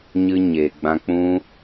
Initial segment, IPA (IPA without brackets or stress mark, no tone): ɲ